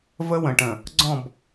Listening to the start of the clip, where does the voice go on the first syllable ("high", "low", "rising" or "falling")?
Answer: high